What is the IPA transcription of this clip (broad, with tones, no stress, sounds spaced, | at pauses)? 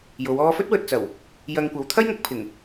j o˨˧ w ɔː˥ f ɵ˥ t̚ w ɵ˨ t̚ t͡s ɐ˨˩ w | j ɐ˧ ŋ kʷ ɐ˨˧ w t̪ʰ ɐ˥ j ŋ ʊ˧ k̚ pʰ ɪ˨˩ ŋ